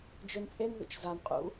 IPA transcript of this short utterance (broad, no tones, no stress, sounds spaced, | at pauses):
d͡ʒ ø n t͡sʼ e n ð ṵ t͡ʃ z a n qʼ ṵ